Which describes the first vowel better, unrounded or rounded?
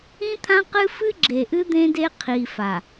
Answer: unrounded